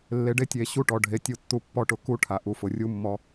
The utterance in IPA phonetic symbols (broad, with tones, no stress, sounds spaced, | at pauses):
lː e˨ ɖ e˦ tʲ e˨ ɕ u˦ ʈ ɔ˨ ɖʱ e˨ tʲ u˨ tː u˦ pː ɔ˦ ʈ ʊ˨ k u˦ ʈʰ a˨ ʔ u˨ f ʊ˨ rʲ u˦ mː ɔ˦